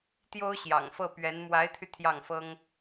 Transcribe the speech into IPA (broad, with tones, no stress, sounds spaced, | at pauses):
t̪ j o˥ ʊ̯ ɕ j ɑ̰˨˩ ŋ f ɤ˥˩ p ɥ ɛ˧˥ n m w a˧˥ ɪ̯ t̪ʰ y˧ t̪ʰ j ɑ˥˩ ŋ f ɤ˥ ŋ